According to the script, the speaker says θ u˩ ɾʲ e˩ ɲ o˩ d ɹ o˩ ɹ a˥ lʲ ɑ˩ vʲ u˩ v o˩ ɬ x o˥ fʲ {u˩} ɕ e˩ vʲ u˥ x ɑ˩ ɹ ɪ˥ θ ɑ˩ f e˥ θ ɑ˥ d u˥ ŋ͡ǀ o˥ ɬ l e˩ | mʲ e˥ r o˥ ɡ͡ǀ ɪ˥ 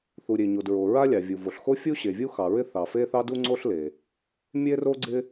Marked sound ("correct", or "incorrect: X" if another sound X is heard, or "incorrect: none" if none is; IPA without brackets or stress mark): incorrect: u˥